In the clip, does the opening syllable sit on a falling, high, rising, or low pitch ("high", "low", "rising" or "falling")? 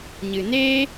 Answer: low